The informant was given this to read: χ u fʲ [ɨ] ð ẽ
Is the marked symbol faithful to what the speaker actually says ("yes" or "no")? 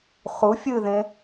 yes